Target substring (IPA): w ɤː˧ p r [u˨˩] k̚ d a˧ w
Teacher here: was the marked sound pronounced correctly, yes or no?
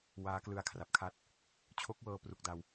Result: yes